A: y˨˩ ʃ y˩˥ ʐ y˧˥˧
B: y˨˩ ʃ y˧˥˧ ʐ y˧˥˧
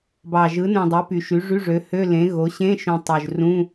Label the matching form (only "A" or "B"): A